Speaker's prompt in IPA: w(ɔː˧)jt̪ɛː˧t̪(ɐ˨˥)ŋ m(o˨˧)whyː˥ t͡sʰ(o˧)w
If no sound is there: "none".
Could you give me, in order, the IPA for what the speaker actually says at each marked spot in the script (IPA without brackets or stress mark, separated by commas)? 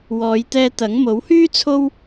ɔː˨˧, ɐ˨˥, o˨˥, o˥